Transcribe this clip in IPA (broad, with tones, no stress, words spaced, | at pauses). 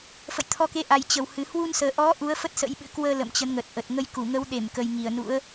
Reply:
fə̰˧˨jt̪ʰɔ˧ke˨˦ʔa˨˩j t͡ɕə˨˩whɨ˨˩ hwu˧nsəː˨˩ʔɔ˨˦ ʔu˨˦ə̯fə˦˥t̚sə̰˧˥jɓɨ̰˧˥ kwəː˧ lə̰˧˨mt͡ɕə˨˦nŋə˨˩t̚ʔə˨˩t̚ ŋə˧jku˧˩ŋə˨˦wɗe˧˩m kə˨˩jŋi˧˩ə̯nṵ˧˥ə̯